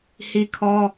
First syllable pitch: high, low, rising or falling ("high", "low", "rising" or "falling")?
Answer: high